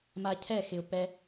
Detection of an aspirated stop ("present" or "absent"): present